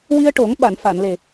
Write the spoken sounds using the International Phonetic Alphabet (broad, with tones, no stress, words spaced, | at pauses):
wi˧ə̯ʈo˨˩˦ŋ ɓa˨˩˨nfa˨˩˨nle˨˩